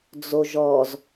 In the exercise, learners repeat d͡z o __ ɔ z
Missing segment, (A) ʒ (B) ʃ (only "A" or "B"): A